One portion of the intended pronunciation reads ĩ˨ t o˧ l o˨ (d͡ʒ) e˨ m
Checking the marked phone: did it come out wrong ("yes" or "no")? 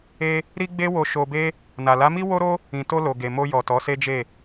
yes